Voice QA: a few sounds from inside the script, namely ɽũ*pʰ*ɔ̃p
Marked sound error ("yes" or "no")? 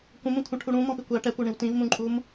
yes